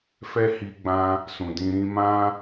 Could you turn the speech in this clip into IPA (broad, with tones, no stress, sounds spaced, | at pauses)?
f ɛ˦ h i˧ ɡ͡b ã˧ | s ũ˨ d ĩ˧ ɾ ĩ˧ m ã˦